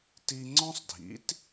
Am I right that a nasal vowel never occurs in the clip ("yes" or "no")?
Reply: no